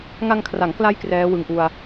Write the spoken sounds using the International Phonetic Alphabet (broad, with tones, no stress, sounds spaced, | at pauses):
ŋ a˧ ŋ kʰ r a˩˦ ŋ k l a˧ j k r ɛː˦˥ w ɯ˧ ŋ ʔ u˧ a̯